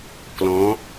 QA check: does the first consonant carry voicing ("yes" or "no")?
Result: no